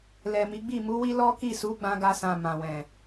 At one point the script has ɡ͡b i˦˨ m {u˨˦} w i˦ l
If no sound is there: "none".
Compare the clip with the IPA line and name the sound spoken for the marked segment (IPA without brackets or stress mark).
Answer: u˨˦